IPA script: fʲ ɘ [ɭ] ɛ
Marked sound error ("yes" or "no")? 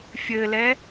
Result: yes